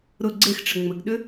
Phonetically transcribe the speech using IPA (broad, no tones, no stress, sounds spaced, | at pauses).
ɾ ʊ ɡ͡ǀ e x ʈ͡ʂ ɘ ŋ͡m ɘ ɡ ɗ ʏ